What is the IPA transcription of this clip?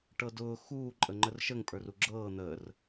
ʈ ɤ d ʊː x uː ǃʼ ə ŋ͡ǃ ə r ʃ ə ŋ pʼ ə˞ r u ɡ͡ǁ ɤː n̪ əː r

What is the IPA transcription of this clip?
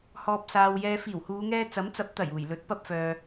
h ɔː˨ p̚ s aː˨ w j ɛː˨ f iː˨˩ w h uː˨˧ ŋ ɛː˧ t͡s ɐ˨˥ m t͡s ɐ˨˥ p̚ t̪ ɐ˨˩ j uː˨˩ j l ɵ˨˥ t̚ p ɐ˧ p̚ f œː˨

